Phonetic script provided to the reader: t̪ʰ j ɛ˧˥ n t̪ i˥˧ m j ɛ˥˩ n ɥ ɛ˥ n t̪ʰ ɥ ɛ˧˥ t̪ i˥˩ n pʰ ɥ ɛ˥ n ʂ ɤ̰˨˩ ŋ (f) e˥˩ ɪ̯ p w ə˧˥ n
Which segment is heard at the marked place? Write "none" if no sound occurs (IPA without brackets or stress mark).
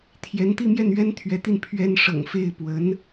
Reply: f